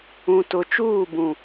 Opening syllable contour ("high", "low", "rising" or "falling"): low